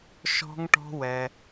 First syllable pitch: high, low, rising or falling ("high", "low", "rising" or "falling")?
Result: high